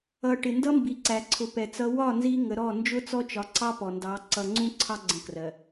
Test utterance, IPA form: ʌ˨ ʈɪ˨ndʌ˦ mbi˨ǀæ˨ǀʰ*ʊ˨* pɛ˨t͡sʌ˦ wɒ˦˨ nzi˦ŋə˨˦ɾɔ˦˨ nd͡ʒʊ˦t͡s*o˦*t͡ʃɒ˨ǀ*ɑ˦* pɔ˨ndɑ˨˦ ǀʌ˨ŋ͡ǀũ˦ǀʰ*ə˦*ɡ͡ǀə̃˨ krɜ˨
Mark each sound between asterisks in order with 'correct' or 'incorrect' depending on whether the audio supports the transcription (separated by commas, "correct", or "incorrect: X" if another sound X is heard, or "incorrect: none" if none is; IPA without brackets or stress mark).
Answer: correct, incorrect: ɔ˦, correct, incorrect: ɑ˦